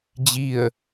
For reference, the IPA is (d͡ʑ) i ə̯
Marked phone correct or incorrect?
correct